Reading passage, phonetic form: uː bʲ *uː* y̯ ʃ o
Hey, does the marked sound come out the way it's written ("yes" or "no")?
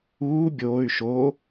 no